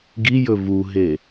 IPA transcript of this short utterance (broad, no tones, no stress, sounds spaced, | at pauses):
ɡ i j ɵ v u ɦ e